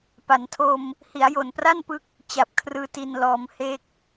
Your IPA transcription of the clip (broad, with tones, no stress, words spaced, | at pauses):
pa˩˦ntʰo˧m | hi˩˦a̯jo˨˩npra˥˩n pɯ˦˥k̚ | t͡ɕa˨˩p̚kʰrɯː˧ ti˧nlɔː˧m he˦˥k̚